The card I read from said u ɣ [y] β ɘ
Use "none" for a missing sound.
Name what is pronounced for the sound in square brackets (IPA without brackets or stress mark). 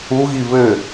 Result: i